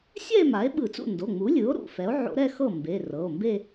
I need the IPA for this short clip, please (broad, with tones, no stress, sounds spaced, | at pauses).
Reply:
sʲ ɛ˥˧ e̯ m a˩˥ e̯ ɓ ɯ˧˩˧ t͡s ṵ˥˩ n d o˩˧˩ ŋ͡m u˩˥ lʲ ɯ˩˥ o̯ ɾ ṵ˩˧˩ f ɛ˩˥ o̯ ʕ o̰˧˥ ɾ ɛ˥˧ x ɤ˥˩ m b e˩˧˩ r ɤ˩˧˩ o̯ m b e˥˧